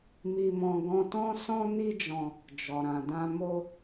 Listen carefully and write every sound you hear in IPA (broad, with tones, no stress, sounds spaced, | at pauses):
m i˧ m ɔ̃˧ ɡ ɔ̃˧ t ɔ̃˦ s ɔ̃˦ n i˦ d͡ʒ ɔ̃˧ | d͡ʒ ɔ˨ ɾ ã˨ d ã˧ m o˦